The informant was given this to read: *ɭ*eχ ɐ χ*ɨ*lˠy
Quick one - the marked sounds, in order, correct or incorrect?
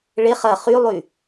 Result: correct, incorrect: y

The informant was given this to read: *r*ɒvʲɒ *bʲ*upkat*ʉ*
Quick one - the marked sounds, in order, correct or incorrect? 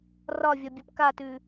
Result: correct, correct, correct

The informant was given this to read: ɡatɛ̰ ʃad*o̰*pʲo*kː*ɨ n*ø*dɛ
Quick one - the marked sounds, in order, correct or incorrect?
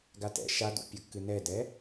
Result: incorrect: ṵ, correct, incorrect: ɛ

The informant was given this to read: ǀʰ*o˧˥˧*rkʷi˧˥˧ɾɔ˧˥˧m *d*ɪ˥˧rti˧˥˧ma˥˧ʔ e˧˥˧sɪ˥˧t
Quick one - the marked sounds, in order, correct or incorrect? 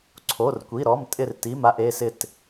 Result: correct, incorrect: tʼ

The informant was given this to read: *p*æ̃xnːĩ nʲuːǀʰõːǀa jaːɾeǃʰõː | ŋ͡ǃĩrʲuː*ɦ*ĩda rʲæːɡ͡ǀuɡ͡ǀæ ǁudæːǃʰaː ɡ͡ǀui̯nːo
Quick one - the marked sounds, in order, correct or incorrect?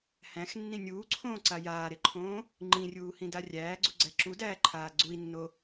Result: incorrect: h, incorrect: h

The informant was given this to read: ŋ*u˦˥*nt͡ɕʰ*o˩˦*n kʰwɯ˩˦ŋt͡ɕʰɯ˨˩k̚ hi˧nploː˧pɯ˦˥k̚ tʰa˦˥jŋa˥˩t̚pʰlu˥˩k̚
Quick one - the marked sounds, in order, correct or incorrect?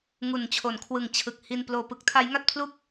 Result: incorrect: u˨˩, correct

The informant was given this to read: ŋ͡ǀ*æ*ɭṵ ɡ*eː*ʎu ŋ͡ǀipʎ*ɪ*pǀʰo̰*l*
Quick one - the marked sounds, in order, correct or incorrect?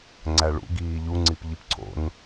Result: correct, incorrect: iː, incorrect: i, incorrect: n

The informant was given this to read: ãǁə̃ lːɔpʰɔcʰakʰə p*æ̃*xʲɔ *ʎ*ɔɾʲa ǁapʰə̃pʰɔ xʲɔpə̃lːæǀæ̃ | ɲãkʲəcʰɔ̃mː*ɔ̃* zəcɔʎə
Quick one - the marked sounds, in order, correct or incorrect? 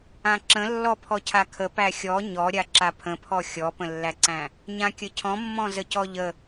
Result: incorrect: æ, incorrect: ɲ, correct

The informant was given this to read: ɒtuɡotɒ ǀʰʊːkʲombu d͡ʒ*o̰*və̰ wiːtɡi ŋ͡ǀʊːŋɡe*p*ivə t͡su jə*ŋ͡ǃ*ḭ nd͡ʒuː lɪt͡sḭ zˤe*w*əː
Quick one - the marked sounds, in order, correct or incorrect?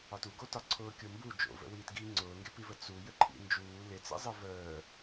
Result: correct, correct, incorrect: ǃʰ, incorrect: v

